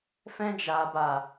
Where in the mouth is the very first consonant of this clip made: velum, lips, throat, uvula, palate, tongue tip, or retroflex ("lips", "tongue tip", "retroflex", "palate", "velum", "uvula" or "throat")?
lips